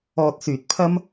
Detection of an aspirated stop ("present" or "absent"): present